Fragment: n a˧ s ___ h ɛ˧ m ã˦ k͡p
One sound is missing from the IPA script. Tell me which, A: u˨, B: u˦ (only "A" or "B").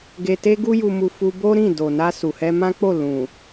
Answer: A